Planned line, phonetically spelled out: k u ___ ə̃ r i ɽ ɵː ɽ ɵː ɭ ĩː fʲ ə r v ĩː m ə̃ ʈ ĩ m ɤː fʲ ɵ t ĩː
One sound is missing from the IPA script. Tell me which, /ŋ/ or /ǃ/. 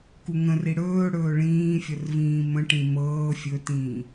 ŋ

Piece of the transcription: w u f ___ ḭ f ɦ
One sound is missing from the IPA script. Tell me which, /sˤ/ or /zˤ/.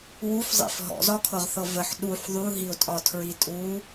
zˤ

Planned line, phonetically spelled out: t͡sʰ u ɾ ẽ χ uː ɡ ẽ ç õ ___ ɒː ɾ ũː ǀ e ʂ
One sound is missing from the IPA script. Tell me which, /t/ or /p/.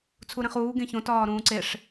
t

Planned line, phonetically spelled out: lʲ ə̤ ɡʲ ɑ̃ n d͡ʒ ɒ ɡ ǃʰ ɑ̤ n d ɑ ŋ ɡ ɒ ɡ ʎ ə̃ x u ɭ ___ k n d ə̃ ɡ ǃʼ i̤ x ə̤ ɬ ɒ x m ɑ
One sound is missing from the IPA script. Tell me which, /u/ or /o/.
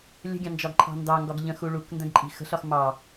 u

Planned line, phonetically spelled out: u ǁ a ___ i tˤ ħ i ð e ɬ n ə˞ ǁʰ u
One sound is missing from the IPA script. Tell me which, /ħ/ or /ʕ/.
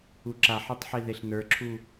ħ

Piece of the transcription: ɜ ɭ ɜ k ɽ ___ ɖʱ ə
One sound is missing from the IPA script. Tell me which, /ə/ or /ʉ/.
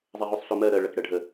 ə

